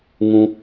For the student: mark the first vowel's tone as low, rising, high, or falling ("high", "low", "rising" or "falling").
low